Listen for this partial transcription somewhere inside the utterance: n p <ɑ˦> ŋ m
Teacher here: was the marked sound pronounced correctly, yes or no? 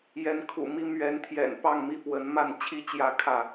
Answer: no